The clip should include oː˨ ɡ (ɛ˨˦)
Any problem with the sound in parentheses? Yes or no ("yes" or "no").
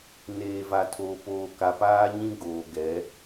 no